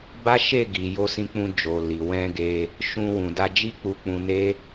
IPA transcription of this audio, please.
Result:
b a˦ ʃ e˦˨ ɡ i˨ j o˧ s ĩ˧ k͡p ũ˧ d͡ʒ o˨ l i˨ w ɛ̃˧ ɡ e˧ | ʃ ũ˧ w ũ˨ d a˧ d͡ʒ i˦ k͡p u˧ k͡p ũ˧ n e˦

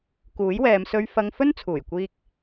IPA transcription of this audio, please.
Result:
k uː˨˥ j w ɛː˨˧ m s ɵ˧ ɥ f ɐ˧ ŋ f ɵ˥ n t͡sʰ uː˨˩ j kʷ iː˧ k̚

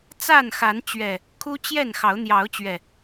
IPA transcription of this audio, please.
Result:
t͡s a˥˨ n x a˨˦ n t͡ɕ ɥ ɛ˨˩ | kʰ u˦ t͡ɕ j ɛ˥˨ n x ɑ˨˦ ʊ̯ n̪ j ɑ˨˦ ʊ̯ t͡ɕ ɥ ɛ˨˩

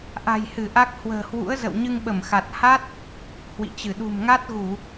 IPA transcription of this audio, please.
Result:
ʔ a̤˨˩ j h ɨ˧˩ ʔ a˦˥ k̚ h w ə̤ː˨˩ h w ṵ˧˥ ə̯ z ə̰˧˨ w ɲ ɨ˧ ŋ ɓ ə˧˩ m x a˨˩ t̚ h a˦˥ t̚ | h w ḭ˧˨ t͡ɕ ɨ˧˩ ɗ ṳ˨˩ m ŋ a˦˥ t̚ ɣ u˧˩˨

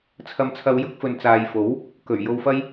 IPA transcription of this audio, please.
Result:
t͡sʰ ɐ˨˧ m t͡sʰ ɐ˨˧ w j ʊ˨˥ k̚ f ɵ˨ n t͡s aː˨ j f o˨˥ w | k ɵ˨˩ ɥ j o˧ w f ɐ˥ j

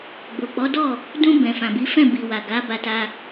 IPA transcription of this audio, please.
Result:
ɡ͡b o˨ k͡p ɔ˨˦ d ɔ˦˨ | d ũ˧ b ɛ̃˨ f ã˨ b i˨˦ f ɛ̃˦˨ b i˨ w a˨ ɡ a˨˦ b a˧ t a˧

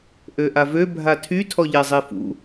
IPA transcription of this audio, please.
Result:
ʔ ø ʔ a v ø bʱ a tʰ y tʰ ɔ ʎ ɛ zˤ e f ṵ

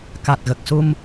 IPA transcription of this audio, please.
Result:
k a˨˩ t̚ ɣ ə˨˩ k̚ s u˧ m

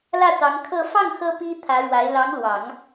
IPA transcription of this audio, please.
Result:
l ä˥˩ t̪ ɑ˧˥ ŋ kʰ ɤ˥˧ f ɑ˥˩ ŋ x ɤ˥ p i˥ t̪ʰ ä˧˥ ɻ w a˧˥ ɪ̯ l ɑ˧˥ ŋ l w ɑ˨˩˦ ŋ

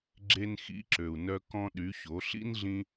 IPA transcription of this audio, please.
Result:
ɡ͡ǁ e˧ n x ḭ˨˦ ǁ ø˨ u̯ n œ˧ k ɔ̃˦ ɗ y˨˦ ç o˨˦ ɬ ḭ˦ n ɮ ĩ˧

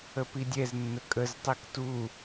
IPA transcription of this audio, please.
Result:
ə p i dʲ ɛ z nː ə kʼ ə z tˤ i k t u

